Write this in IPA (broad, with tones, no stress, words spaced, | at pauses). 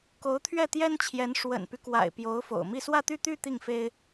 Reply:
ko˧˥ʊ̯t̪ʰɥɛ˥˩t̪jɛ˥nt͡ɕʰjɛ˧˥n ʂwə̰˨˩npy˦kwa̰˨˩ɪ̯ pjo˧˥ʊ̯fo̰˨˩ʊ̯mi˥˧ swä˥˧t̪y˥˧t̪y˥˧ t̪i˥˩ŋfe˥ɪ̯